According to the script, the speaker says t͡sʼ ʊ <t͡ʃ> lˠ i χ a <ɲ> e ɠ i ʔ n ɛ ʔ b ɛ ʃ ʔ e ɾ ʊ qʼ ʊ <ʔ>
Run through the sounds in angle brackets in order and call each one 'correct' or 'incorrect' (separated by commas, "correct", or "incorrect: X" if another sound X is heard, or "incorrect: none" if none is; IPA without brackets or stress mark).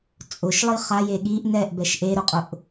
incorrect: ʃ, incorrect: j, correct